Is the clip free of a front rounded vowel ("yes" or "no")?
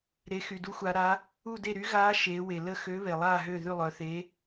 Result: no